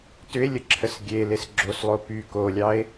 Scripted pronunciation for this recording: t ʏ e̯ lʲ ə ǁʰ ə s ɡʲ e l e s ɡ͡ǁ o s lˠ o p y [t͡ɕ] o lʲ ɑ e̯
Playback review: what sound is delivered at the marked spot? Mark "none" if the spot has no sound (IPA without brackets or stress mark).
k